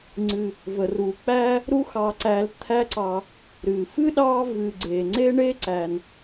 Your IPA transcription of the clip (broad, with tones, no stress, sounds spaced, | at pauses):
ŋ͡ǀ ɨ˨ | v ə˩ r u˩ k͡p æ˦ | ɾ u˦ x ɑ˨ ǀ æ˨ l t̪ʰ æ˦ ǀ ɑ˨ | ɾ ɨ˩ f ɨ˥ ɗ ɑ˦ v ɨ˨ ɡ͡ǀ e˩ ŋ͡ǀ e˥ ɳ e˥ ǀ æ˩ n